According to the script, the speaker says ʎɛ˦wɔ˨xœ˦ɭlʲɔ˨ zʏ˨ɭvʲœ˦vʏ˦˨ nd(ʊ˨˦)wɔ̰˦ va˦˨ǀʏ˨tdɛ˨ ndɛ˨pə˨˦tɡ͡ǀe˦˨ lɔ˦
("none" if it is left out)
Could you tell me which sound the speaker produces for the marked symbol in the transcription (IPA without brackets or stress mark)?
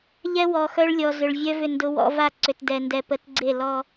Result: ʊ˦